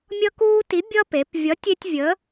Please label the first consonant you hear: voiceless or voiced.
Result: voiced